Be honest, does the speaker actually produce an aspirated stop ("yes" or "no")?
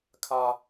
yes